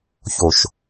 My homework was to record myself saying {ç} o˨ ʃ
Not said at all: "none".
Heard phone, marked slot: ç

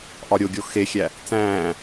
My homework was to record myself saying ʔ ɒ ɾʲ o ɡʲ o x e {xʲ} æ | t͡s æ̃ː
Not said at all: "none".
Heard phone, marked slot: xʲ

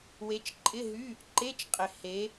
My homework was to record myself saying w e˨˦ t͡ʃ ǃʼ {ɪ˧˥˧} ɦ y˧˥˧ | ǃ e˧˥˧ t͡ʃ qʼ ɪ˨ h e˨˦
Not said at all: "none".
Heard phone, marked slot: ɪ˧˥˧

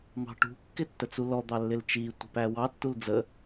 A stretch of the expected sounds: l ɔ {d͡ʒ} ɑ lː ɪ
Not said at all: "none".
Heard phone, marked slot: d̪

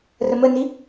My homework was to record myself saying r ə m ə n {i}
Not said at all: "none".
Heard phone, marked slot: i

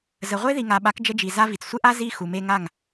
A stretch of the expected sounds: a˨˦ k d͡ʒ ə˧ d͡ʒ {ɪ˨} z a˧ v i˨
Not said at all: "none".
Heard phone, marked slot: i˨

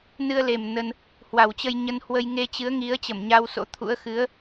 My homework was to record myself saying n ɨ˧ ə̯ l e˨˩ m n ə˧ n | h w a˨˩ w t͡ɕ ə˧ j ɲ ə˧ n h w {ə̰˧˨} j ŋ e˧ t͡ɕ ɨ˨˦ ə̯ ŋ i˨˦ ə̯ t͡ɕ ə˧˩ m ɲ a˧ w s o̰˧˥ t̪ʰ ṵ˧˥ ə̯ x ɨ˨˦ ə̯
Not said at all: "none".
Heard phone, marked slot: ə˧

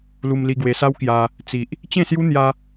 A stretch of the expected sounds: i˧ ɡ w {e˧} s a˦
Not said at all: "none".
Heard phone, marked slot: e˧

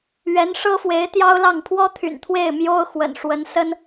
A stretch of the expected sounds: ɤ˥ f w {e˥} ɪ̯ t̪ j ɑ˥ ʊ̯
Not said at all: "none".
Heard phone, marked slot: e˧˥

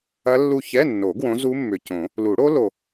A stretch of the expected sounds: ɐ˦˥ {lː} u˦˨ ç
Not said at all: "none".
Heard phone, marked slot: lː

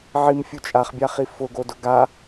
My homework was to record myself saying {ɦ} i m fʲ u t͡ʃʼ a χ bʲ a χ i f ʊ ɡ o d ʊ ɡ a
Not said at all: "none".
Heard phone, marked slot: ʕ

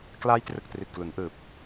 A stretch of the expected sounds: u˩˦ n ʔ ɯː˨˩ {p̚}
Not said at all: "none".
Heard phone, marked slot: p̚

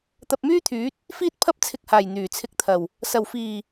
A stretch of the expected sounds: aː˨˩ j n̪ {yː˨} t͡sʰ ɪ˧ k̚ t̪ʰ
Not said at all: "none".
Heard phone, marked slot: yː˨˩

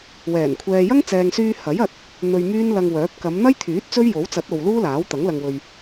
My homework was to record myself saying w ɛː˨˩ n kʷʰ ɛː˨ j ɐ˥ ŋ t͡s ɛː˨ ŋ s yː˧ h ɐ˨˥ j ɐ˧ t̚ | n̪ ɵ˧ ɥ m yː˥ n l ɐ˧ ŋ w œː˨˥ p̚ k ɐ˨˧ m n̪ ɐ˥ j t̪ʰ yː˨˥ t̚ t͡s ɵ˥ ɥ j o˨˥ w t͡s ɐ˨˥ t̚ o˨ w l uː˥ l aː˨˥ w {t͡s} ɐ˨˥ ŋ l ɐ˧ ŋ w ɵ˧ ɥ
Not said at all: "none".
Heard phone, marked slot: t̪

